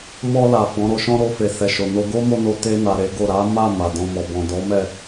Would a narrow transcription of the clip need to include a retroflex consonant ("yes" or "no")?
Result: no